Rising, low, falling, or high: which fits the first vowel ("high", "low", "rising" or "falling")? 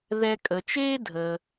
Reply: high